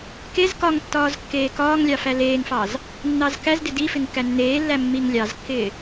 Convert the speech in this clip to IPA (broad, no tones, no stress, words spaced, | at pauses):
kez kɒŋ tːɒːzkːeːkɒːŋlʲɑ fæleːŋfɑz | nːɑzkæzdɪ difɪŋ kænːeːlːæ mːiŋlʲɑzkːɪː